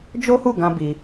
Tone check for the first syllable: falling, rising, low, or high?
high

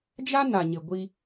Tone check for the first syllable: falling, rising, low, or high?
high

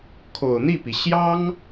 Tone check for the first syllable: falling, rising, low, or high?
low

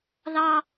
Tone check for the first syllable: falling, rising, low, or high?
high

